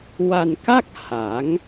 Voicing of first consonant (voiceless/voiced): voiced